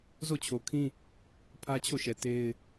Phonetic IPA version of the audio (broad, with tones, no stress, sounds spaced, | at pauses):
z o˦˨ t͡ɕʰ o˨ kʰ ĩ˦ | pʰ ä˦ t͡ɕʰ o˦˨ ʃ ɛ˨ t e˦ ɪ̯